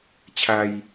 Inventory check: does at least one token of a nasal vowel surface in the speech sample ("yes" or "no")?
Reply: no